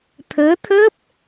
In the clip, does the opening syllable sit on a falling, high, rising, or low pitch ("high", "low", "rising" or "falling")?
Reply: rising